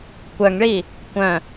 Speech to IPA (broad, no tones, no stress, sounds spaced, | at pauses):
kʷ œ ŋ ɭ i | kʷ œ̃